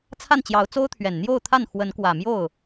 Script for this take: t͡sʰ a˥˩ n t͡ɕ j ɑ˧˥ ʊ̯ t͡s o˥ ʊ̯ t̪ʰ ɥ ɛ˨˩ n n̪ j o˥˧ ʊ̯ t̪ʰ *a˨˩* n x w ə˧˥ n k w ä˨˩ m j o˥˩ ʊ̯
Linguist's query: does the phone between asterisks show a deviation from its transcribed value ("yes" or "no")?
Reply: yes